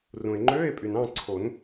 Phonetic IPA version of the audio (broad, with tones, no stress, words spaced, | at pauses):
rũ˩e̯ŋ͡ǃøː˧˥˧e̯pʼy˩n ɑ̃˥˧ǀʰo˨˩˦n